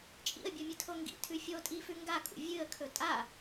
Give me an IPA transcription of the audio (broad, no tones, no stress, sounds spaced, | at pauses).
t͡ʃʼ ḭ ə̯ bʲ o mʲ ɨ tʰ o ŋ ɡ ḭ tʰ ʉ fʲ o tʼ i f ʉ ŋ ɡ a kʼ ṵ vʲ ɨ ə̯ kʰ ɵ tʼ a